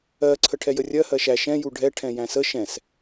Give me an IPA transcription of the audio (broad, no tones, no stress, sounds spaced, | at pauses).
ɜ ǀʰ ə ʈʰ ɛ j ə rʲ ɜ h ɜ ʃ æ ʃ ɛ̃ j u ɖʱ ɛ ʈʰ ɛ̃ j æ̃ s ə ʃ ɛ̃ s